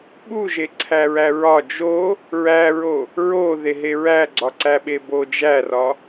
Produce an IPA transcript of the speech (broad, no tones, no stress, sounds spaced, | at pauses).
ɓ u ʒ e ǀʰ æ ɹ æ ɹ ɒ d͡ʒ o | ɹ æ ɹ o | ɹ o ð e ɦ e ɹ æ ɡ͡ǀ ɒ ǀ æ ɓ e b o d͡ʒ æ r ɒ